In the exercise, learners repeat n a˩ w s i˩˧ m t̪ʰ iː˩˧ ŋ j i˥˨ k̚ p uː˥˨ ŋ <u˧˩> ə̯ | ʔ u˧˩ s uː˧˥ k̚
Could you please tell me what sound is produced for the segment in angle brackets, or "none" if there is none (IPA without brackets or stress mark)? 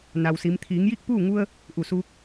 u˧